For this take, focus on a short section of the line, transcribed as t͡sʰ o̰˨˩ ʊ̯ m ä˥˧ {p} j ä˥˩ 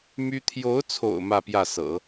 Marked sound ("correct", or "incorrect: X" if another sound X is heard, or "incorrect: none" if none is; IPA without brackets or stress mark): correct